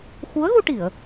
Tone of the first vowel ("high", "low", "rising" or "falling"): rising